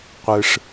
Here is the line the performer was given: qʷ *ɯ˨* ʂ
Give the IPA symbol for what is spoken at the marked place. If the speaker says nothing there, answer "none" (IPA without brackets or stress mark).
ɯ˨